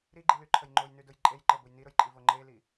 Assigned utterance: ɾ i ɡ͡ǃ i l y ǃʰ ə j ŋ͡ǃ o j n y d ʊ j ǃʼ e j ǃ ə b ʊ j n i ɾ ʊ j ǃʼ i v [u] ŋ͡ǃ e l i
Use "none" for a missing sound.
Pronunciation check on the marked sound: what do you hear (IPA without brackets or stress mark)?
o